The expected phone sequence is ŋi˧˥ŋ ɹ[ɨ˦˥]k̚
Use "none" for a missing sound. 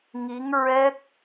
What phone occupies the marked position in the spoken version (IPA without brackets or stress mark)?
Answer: ɛ˦˥